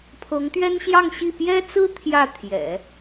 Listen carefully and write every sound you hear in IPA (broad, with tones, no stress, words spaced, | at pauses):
pʰɤ˧˥ŋt̪ɥɛ˥nɕjɑ˥˧ŋɕi˥˩ pjɛ˥t͡sɹ̩˥ t̪ʰjä˥˩t̪ʰjɛ̰˨˩˦